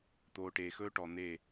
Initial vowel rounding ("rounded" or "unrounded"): rounded